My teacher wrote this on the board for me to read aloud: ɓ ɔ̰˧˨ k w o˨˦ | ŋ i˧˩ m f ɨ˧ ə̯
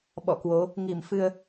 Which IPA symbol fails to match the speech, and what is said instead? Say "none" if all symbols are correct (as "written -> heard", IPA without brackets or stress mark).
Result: none